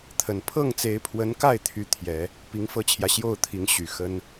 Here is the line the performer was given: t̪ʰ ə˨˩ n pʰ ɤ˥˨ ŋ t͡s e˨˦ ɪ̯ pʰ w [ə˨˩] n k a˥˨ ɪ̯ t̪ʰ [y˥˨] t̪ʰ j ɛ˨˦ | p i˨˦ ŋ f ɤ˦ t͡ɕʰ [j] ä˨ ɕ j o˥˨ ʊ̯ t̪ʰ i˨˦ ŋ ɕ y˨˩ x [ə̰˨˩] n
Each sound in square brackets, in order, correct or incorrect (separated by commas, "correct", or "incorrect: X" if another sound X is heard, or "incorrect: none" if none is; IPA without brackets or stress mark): incorrect: ə˨˦, incorrect: y˦, correct, incorrect: ə˦